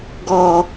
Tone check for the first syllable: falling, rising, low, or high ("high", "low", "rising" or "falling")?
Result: low